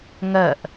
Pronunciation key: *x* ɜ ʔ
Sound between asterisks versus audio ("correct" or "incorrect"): incorrect